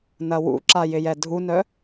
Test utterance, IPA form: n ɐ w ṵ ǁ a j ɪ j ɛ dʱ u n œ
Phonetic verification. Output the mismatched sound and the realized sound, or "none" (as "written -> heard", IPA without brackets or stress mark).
none